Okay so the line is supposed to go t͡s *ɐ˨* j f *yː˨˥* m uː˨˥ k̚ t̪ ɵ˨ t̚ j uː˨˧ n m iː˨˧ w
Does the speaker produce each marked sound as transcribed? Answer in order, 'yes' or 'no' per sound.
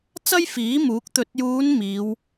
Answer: no, no

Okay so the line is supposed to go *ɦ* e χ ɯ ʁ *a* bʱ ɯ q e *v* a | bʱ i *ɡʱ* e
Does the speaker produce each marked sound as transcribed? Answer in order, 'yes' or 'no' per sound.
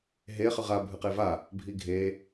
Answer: yes, yes, yes, yes

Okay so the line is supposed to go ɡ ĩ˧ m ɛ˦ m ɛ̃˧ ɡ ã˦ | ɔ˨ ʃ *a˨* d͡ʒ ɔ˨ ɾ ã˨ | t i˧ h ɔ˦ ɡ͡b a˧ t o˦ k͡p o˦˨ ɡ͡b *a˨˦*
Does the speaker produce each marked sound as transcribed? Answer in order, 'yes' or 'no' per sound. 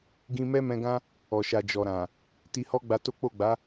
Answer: yes, yes

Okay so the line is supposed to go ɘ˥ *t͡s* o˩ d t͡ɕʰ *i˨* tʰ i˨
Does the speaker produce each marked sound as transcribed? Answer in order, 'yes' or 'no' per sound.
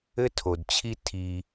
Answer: no, no

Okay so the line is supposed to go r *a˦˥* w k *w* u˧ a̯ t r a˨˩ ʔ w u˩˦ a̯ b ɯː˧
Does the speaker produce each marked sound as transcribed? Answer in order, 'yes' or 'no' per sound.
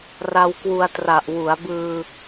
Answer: no, yes

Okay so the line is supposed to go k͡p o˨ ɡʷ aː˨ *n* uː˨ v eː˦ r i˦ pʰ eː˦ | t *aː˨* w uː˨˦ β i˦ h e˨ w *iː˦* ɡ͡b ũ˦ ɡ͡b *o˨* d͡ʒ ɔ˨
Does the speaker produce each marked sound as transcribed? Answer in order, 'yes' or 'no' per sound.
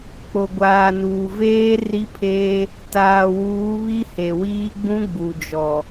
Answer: yes, yes, yes, no

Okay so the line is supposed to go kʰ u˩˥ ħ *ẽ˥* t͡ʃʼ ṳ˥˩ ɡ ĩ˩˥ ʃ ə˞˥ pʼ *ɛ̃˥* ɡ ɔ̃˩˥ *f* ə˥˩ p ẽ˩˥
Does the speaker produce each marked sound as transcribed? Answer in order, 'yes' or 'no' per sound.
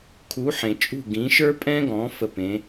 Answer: no, yes, yes

